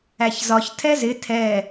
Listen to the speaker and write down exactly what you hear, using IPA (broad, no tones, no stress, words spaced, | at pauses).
æçzɒç tʰɛzɪ tʰɛ